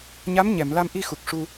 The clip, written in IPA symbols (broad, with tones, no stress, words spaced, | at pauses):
ɲa˧˥mɲɛ˨˩˨mla˧mʔi˧ xu˨˩k̚ʂu˧